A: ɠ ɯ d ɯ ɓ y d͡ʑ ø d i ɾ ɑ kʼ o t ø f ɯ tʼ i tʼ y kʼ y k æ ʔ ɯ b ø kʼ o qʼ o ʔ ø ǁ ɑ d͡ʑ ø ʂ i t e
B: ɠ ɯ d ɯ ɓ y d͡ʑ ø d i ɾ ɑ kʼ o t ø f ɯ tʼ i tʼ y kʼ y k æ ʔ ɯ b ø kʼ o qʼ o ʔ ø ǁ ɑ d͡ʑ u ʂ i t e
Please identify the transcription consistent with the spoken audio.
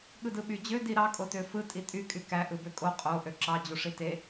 B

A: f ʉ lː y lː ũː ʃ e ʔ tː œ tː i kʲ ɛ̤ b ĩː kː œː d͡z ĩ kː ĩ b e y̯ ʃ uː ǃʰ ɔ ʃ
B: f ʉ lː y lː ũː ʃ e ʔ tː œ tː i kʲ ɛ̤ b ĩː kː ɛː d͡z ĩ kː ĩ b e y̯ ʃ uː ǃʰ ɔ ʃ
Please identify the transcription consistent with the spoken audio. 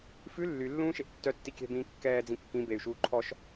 B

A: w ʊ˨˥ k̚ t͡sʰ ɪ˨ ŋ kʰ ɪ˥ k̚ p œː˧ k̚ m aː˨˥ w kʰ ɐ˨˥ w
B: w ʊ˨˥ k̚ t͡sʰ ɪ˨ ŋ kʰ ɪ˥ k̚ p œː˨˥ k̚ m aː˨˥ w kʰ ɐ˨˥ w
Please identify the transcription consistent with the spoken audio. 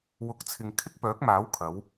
B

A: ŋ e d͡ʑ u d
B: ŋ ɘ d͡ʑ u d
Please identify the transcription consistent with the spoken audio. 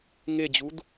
A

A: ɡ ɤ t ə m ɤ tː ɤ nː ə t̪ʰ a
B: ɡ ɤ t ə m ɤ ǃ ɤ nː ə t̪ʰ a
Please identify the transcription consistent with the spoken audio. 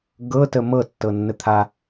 A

